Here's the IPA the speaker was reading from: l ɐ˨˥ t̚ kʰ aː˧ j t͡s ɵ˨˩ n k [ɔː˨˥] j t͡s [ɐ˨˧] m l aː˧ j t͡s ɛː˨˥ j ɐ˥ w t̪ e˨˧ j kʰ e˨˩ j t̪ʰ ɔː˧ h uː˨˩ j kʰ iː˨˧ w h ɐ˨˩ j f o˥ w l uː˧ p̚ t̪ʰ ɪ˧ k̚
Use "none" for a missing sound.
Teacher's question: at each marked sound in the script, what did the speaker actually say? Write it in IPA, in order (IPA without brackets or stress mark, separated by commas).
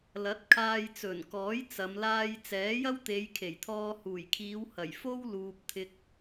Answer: ɔː˨˥, ɐ˨˧